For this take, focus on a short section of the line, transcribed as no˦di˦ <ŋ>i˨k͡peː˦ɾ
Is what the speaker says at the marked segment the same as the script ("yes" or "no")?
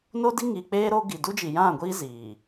yes